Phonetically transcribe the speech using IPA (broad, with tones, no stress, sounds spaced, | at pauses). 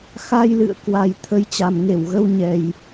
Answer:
x a˧ j l ɨ̰˧˨ ə̯ k w a˨˩ j t̪ʰ ə˨˦ j t͡ɕ a˨˩ m ŋ e˧˩ w ɣ ə˧ w ɲ ɛ˨˩ j